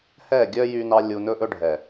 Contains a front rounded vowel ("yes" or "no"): yes